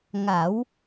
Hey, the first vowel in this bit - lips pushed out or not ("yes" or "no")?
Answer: no